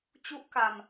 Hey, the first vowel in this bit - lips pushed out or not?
yes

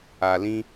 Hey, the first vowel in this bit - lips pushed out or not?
no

